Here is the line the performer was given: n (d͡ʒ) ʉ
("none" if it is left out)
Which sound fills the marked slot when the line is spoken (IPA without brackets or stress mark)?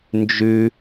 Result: d͡ʒ